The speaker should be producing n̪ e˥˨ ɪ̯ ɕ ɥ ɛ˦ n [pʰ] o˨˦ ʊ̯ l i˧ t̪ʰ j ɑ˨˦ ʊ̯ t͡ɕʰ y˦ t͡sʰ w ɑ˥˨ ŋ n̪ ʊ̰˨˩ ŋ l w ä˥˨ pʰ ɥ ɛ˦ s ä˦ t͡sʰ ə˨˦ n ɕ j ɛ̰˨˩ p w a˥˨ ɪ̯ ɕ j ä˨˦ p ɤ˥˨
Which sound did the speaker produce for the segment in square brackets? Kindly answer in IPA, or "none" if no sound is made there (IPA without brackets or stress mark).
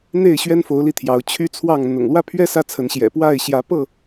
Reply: f